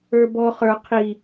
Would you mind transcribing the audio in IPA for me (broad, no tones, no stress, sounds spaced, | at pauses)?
ə˞ b ɔ χ ə˞ qʰ i